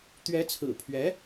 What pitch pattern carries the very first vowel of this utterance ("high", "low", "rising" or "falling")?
rising